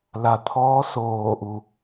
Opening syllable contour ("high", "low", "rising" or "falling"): low